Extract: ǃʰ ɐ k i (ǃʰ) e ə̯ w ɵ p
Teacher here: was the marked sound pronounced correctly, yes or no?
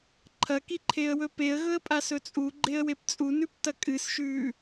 yes